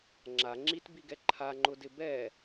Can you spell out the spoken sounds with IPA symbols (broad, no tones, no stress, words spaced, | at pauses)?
ŋ͡ǁa ŋ͡ǁitbiɡɛ ǃʰaŋ͡ǃʊdɪ bɛ